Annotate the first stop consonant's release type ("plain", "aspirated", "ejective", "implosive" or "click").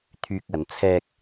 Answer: aspirated